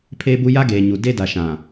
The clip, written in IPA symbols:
pʰeː˦bu˦ ja˦ɡeː˨ɲu˨ de˦da˨ ʃã˨

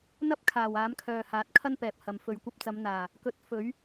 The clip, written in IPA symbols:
n̪ɐ˥p̚kʰaː˨˩w aː˨˥mkʰœː˨haː˨˥t̚ kʰɐ˥npɛː˨p̚hɐ˨m fɵ˨ɥkʷɐ˧p̚t͡sɐ˨˧mn̪aː˨˩ | kɵ˨˥t̚ fɵ˨˥ɥ

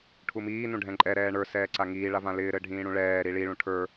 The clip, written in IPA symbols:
ʈʰumiː nũɖʱɛ̃ǃʼɛ ɾɛːɳə˞ sɛːǀaŋiː ɭavãlɪː ɾɘɖʱĩːɽũɭɛː ɾiɭi ɭũʈʰə˞

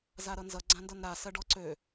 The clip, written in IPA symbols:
zaɾʌnzʌ ɡ͡ǀãndʌnɾa sɜɖɔǀø

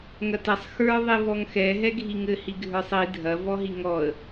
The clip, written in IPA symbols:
ŋɐtɛsˤ xə˞ ðˤivɔŋxɛ ɦɛɡʱiŋɘ hiɡʱə˞sˤi dʱɐ vɔɦiŋɔə̯

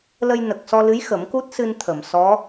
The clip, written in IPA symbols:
lə˧jnə˨˩k̚sɔ˧lɨ˧˥j xə˨˩˦mku˦˥t̚sɨ˧n t̪ʰə˨˩˨msɔ˧˥

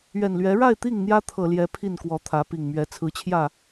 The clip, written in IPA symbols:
ɥɛ˨˩nlɥɛ˨˦ ɻa˥˨ɪ̯t̪i˥˨ŋ n̪jä˦t̪ʰɤ˨˩ljɛ˨˦ pʰi˥˨nkwɔ˨˦t̪ʰä˨˦ pi˨˩ŋ mɥɛ˨˦ t͡sʰɹ̩˨˦t͡ɕʰjä˥˨

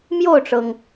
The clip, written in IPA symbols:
mjo˥˩ʊ̯ʈ͡ʂɤ˩ŋ

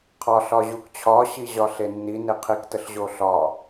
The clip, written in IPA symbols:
qʰɒ ɬɒʑukt͡ɕʰɒɕi ʑɒɬenːi neqʰiktəɬ ʑoɬɒ

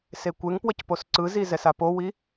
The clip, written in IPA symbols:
sekʷeŋpwʌc posǀɯzi zɛsapowi

